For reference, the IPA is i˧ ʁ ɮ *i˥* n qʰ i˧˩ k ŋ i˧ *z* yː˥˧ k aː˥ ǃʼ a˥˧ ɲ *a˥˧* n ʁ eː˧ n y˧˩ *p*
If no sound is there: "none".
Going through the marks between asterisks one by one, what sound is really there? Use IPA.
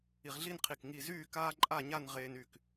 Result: i˥˧, z, a˥˧, k

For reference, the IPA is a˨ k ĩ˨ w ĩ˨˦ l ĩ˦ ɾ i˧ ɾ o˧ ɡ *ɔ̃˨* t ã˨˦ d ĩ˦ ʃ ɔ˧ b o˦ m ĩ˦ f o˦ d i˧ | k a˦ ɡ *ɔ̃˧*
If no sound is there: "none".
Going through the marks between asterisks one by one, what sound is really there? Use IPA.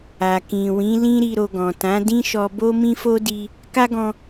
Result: ɔ̃˨, ɔ̃˧

